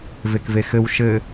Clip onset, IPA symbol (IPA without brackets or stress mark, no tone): v